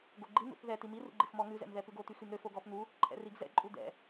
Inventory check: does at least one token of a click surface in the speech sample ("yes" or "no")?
yes